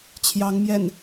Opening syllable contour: rising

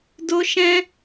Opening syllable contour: high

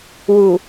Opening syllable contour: low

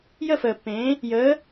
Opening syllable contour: falling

